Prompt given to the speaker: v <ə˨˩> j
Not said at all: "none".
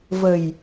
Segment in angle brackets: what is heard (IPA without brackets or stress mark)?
ə˨˩